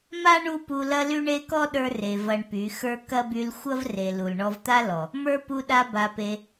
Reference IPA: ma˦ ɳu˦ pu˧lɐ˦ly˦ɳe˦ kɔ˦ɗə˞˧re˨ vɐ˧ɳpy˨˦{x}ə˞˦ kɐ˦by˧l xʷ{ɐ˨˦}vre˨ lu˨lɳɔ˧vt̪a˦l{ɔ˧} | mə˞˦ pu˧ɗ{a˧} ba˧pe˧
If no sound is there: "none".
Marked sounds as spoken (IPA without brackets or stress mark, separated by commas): x, ɐ˦, ɔ˨, a˧